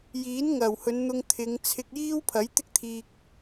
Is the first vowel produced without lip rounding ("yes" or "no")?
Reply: yes